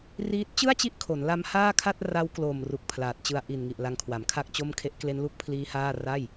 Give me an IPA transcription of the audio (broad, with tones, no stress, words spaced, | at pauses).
riː˦˥t̚ t͡ɕɯ˥˩a̯t͡ɕi˦˥ʔ kʰo˩˦n la˦˥mhaː˥˩kʰa˥˩t̚ ra˦˥wklo˨˩m ru˨˩k̚pʰlaː˨˩t̚t͡ɕɯ˧a̯ ʔi˨˩nŋi˨˩ʔ la˧ŋkʰwa˩˦mkʰa˥˩k̚t͡ɕo˥˩m kʰe˦˥ʔkle˦˥nlu˥˩k̚pʰliː˦˥ haː˥˩ ra˥˩j